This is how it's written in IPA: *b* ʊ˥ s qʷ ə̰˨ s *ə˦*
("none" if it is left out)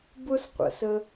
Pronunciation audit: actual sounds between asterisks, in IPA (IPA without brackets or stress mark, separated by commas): b, ə˦